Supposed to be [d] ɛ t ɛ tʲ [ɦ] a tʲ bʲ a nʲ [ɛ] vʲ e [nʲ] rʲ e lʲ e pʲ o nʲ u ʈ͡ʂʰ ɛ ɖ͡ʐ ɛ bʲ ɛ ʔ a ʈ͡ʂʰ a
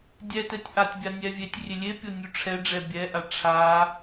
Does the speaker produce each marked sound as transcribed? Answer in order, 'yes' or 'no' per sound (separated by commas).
no, no, yes, no